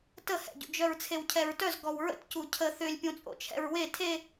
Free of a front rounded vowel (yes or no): no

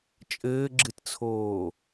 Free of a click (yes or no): no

